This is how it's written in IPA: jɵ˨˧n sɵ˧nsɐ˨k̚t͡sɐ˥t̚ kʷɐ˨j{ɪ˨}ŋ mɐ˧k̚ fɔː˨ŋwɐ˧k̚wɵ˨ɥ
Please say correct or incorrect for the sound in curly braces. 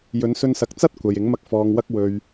incorrect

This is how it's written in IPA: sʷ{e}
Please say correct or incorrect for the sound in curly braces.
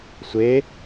correct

